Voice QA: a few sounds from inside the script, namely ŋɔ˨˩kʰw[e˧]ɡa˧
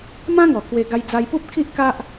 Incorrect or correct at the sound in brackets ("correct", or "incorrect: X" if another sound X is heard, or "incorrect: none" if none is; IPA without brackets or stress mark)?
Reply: correct